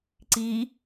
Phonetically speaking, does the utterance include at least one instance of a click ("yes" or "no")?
yes